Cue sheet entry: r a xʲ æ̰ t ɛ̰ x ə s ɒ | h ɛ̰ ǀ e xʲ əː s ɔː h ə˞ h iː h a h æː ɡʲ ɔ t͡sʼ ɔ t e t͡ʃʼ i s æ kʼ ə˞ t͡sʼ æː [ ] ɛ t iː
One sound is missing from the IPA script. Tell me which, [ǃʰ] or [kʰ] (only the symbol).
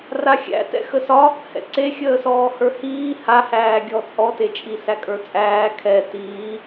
kʰ